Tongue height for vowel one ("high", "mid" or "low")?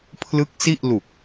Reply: high